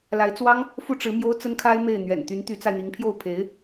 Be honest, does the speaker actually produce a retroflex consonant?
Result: yes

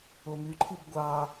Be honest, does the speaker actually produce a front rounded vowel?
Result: yes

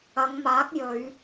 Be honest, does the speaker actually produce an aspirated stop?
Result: no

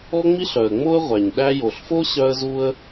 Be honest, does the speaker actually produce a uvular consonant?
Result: yes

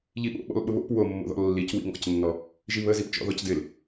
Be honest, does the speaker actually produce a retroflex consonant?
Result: no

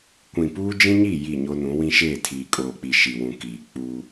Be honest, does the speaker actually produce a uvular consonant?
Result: no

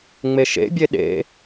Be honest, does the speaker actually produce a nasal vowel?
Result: no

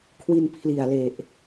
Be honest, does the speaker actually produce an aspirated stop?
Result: yes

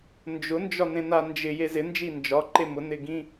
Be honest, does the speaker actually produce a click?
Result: yes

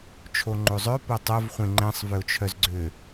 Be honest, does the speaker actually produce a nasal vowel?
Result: yes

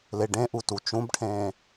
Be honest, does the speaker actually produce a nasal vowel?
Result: yes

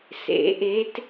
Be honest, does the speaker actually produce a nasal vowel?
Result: no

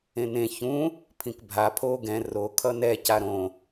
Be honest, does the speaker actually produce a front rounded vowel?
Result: no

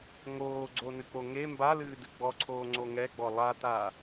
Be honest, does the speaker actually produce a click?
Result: yes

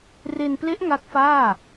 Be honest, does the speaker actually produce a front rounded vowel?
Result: no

